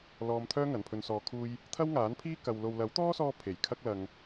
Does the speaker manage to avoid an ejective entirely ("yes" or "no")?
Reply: yes